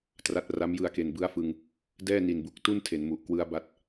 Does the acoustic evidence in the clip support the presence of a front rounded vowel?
no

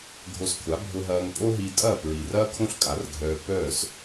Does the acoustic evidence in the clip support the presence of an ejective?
yes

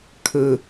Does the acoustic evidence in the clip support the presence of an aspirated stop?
yes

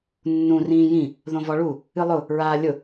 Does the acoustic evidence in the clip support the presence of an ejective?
no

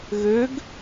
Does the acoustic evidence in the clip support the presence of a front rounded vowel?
yes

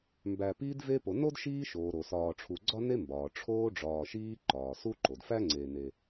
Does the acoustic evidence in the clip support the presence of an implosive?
no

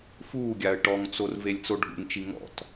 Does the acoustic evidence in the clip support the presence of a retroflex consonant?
yes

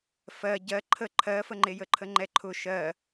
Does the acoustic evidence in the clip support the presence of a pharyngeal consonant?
no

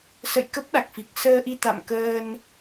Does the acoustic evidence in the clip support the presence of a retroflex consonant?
no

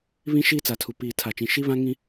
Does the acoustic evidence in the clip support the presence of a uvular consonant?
no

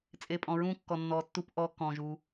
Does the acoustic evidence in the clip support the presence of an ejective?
yes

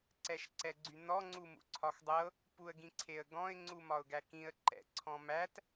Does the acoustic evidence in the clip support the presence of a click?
yes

